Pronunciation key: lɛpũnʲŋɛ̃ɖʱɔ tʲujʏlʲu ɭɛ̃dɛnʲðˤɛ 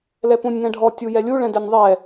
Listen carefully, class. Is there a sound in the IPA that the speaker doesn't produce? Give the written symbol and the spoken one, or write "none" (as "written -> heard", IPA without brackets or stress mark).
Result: ʏ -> ɛ